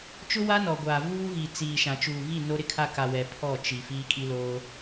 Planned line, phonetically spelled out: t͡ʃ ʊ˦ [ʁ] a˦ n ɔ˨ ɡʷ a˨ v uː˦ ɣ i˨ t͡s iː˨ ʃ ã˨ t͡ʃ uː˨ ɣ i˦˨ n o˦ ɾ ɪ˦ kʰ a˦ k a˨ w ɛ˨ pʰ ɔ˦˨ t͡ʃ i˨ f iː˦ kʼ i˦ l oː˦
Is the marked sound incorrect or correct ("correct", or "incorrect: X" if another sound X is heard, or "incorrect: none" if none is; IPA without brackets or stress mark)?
incorrect: w